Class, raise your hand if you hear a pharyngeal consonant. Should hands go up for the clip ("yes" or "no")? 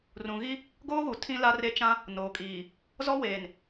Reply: no